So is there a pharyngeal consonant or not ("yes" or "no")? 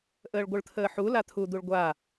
yes